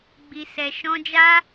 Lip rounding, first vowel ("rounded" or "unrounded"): unrounded